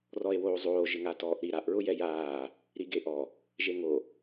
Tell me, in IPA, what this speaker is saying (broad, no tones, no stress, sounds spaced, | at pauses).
r ɔ e̯ w oː zˤ oː ʒ ɪ ŋ a t ɔː ʔ ɾ i ɾ a ʔ ɹ ʊ j ɛ j aː | ɾ i ɡ e ʔ ɔ | ʒ e ŋ o